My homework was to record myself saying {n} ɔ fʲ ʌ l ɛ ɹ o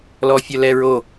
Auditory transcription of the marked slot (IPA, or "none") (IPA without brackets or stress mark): l